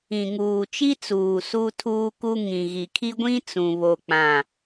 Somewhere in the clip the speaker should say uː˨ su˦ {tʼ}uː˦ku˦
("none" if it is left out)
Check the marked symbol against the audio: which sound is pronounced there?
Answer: tʰ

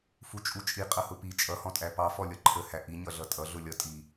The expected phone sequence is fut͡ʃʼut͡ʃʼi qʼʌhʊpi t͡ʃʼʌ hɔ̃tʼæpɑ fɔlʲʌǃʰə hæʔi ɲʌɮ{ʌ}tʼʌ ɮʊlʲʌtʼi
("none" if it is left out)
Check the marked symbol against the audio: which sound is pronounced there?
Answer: ʌ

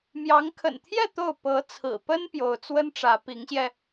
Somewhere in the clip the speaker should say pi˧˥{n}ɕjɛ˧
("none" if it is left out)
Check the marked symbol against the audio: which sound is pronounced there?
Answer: ŋ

